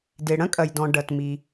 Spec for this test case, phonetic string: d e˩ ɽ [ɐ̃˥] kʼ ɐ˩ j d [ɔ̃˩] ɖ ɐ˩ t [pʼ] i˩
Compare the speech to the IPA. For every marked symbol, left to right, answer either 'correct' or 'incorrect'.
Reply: correct, correct, incorrect

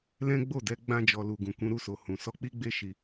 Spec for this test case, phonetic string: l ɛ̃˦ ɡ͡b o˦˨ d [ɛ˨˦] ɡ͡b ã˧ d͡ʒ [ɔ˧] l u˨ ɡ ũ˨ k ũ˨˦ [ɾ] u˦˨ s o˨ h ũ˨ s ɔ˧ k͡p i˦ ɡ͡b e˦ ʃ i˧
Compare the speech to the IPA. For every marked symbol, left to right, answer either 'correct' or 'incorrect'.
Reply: correct, incorrect, correct

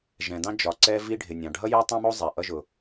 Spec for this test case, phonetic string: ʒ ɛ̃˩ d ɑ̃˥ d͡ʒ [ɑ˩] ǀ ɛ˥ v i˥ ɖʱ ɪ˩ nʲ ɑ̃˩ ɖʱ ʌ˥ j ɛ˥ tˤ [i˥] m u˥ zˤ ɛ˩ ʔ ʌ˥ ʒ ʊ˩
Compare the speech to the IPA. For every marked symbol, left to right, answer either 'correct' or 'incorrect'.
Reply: incorrect, incorrect

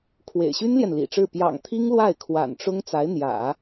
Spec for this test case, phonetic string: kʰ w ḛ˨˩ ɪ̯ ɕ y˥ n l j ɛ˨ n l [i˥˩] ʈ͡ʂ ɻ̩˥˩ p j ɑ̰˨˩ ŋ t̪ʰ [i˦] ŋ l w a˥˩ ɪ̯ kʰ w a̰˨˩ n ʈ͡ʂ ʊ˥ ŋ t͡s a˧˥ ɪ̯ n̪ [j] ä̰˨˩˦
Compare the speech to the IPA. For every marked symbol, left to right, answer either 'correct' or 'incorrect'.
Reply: incorrect, incorrect, correct

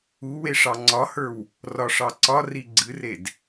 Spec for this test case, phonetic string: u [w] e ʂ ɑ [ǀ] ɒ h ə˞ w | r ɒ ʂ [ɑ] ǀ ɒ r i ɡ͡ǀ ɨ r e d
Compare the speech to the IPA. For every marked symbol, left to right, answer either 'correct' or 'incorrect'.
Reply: correct, incorrect, correct

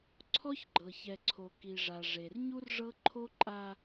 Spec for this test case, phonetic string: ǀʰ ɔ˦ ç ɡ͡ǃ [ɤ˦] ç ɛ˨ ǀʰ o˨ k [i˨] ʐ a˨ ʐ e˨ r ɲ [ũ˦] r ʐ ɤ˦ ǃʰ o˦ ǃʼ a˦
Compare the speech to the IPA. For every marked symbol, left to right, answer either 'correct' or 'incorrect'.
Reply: incorrect, correct, incorrect

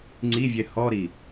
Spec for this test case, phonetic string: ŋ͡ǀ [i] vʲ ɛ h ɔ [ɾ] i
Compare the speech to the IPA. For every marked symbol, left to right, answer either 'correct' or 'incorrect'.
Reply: correct, correct

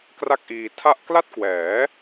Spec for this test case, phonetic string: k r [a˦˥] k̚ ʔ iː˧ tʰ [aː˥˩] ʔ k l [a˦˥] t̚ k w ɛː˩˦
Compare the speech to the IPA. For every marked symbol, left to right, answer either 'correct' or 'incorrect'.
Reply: incorrect, incorrect, incorrect

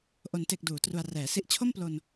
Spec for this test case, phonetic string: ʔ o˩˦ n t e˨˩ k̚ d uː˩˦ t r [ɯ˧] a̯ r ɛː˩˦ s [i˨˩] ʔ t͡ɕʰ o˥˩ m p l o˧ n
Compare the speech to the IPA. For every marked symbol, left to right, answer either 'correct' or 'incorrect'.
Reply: incorrect, incorrect

